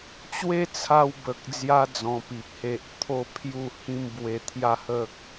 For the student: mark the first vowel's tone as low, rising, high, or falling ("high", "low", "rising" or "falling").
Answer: high